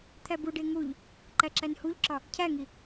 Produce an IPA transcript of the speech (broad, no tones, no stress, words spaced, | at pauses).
t̪ʰæbuɖe ŋuʎ | ǃæǁænhuʎǁɒ | cʰæŋi